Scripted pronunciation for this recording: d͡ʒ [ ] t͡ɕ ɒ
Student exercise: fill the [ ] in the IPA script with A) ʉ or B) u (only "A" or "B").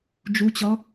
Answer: B